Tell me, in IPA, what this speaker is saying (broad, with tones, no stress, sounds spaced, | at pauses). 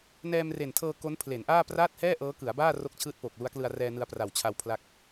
n ɛː˧ m r e˨˩ n tʰ ɤː˧ k o˦˥ n pʰ l e˩˦ n ʔ aː˥˩ p r aː˥˩ t̚ h ɛː˥˩ ʔ ɤː˦˥ k ɯ˩˦ a̯ b aː˥˩ r o˥˩ k̚ t͡ɕʰ ɯː˥˩ t̚ p oː˨˩ k̚ l u˦˥ a̯ k l ɯ˧ a̯ r ɛː˧ n ɯ˧ a̯ p r a˨˩ w t͡ɕʰ a˧ w pʰ l a˦˥ k̚